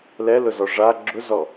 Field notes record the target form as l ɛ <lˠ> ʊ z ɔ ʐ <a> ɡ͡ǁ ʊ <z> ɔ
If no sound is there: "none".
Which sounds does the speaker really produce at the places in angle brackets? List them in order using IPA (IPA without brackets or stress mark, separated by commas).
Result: l, a, z